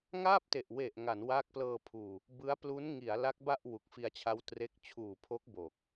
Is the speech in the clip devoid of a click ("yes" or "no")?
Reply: yes